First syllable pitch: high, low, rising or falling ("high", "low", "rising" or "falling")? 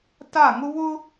falling